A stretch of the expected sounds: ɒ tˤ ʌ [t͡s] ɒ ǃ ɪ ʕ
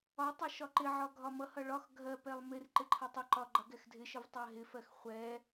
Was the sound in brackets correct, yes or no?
no